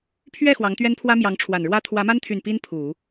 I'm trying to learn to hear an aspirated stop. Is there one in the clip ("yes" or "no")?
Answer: yes